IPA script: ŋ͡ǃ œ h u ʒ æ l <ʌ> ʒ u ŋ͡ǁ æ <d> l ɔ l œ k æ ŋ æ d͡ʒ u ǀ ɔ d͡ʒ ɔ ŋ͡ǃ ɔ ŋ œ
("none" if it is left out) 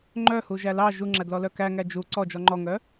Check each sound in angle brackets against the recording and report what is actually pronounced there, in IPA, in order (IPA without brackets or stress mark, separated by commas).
ɑ, d